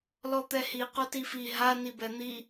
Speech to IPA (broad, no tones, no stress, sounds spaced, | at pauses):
l ɔ t̪ ɛ h i q o t i f i ɦ a n i b ɛ n̪ i